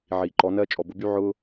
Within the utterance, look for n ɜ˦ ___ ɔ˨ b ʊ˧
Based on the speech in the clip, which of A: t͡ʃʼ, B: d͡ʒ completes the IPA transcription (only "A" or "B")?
A